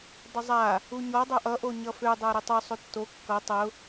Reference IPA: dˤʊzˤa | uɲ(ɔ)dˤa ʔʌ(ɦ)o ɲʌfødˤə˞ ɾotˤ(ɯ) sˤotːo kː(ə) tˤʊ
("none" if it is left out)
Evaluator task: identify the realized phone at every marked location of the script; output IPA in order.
ɔ, ʔ, u, ʌ

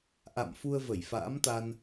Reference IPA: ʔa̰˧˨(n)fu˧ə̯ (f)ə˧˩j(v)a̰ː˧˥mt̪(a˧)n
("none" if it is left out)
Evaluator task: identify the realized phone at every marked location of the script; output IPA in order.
m, v, f, a˧

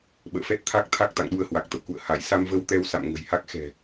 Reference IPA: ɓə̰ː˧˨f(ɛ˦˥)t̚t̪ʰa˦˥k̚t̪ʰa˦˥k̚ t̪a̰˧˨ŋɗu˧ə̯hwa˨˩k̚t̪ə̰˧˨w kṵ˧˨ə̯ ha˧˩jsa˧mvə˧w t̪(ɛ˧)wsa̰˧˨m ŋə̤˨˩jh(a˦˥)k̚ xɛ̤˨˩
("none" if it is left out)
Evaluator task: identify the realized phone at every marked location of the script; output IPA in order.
ɛ˦˥, ɛ˧, a˦˥

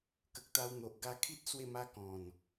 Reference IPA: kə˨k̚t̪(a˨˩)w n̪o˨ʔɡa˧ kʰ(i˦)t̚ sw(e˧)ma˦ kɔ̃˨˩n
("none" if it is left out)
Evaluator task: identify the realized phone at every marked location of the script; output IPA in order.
a˧, i˦, e˥˧

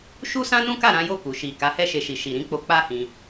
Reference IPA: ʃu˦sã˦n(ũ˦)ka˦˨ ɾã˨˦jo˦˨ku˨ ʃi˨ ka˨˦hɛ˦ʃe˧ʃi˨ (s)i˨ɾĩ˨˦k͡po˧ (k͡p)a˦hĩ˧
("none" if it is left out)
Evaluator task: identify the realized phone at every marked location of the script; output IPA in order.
ũ˦, ʃ, k͡p

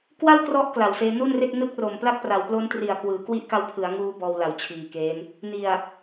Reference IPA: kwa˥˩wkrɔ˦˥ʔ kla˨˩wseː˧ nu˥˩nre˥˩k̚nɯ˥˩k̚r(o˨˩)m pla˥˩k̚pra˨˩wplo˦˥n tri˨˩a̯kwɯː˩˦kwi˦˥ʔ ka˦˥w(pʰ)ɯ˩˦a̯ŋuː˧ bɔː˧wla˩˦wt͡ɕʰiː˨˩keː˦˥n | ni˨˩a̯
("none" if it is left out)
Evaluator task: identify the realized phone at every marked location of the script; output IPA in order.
o˨˩, pʰ

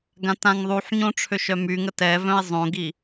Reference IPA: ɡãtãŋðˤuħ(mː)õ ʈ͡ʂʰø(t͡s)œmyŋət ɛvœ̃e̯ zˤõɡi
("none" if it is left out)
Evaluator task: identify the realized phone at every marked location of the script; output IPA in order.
ɲ, ʃ

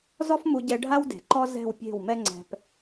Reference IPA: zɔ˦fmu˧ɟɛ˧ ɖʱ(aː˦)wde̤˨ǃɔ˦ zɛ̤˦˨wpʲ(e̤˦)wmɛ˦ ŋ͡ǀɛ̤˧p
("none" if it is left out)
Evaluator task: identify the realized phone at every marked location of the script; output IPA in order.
a˦, e̤˦˨

